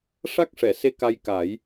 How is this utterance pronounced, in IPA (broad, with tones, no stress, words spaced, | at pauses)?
ʂa˦˥k̚ʂɛ˨˩˨se˧˥ ka˧j ka˨˩˦j